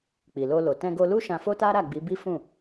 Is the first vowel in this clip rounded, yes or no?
no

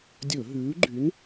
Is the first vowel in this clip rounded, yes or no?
yes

